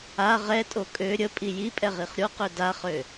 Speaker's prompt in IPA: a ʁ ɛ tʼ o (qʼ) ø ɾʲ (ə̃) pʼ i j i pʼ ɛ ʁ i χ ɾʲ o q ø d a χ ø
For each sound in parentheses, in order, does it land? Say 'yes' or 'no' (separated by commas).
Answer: no, no